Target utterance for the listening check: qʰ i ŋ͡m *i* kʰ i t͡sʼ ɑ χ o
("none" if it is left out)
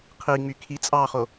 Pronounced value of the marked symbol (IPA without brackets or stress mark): y